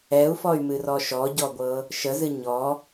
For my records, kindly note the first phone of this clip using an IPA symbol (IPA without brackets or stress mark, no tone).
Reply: ɛ